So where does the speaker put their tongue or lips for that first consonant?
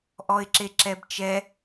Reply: throat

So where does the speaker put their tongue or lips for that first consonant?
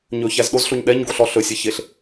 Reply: palate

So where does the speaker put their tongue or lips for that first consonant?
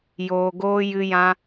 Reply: palate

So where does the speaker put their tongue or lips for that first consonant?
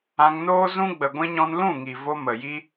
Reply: velum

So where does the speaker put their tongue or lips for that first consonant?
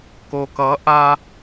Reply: velum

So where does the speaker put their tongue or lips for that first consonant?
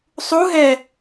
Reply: tongue tip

